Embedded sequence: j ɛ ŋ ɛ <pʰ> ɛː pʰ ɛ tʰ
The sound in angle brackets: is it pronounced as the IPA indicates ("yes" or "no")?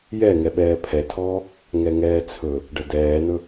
no